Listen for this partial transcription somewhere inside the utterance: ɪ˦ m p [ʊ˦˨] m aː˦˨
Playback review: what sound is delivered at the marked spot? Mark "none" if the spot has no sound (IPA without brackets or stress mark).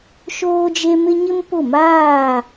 ʊ˦˨